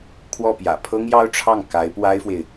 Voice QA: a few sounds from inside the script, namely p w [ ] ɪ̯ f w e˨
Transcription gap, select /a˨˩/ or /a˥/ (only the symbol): a˥